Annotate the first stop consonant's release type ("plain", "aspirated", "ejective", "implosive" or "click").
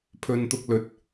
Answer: aspirated